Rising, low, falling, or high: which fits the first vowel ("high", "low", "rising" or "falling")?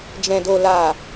low